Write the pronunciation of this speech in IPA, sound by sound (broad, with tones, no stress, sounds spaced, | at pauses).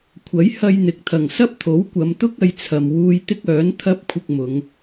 kʷʰ ɐ˨˥ j h ɐ˧ j n̪ ɪ˨ k̚ t̪ʰ ɐ˨˩ ŋ s ɐ˥ p̚ t̪ʰ o˨˥ w kʷ ɐ˨˧ m t̪ ʊ˥ k̚ ɐ˨˧ j t͡sʰ ɐ˨ m w uː˧ j t̪ ɪ˥ k̚ œː˨˥ n t̪ʰ ɐ˥ p̚ kʷʰ ɪ˧ k̚ m ʊ˨˧ ŋ